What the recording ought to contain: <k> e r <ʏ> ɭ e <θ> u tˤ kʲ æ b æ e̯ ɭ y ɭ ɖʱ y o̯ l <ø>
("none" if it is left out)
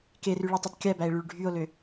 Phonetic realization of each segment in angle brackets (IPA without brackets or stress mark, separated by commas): k, y, tˤ, ø